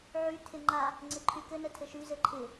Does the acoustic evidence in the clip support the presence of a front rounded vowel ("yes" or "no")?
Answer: yes